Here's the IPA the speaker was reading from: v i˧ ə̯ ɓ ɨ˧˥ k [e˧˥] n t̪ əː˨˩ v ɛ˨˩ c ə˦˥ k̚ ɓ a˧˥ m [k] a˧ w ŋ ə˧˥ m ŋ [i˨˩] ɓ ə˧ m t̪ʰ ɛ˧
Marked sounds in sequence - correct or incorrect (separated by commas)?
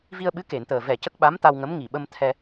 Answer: incorrect, incorrect, correct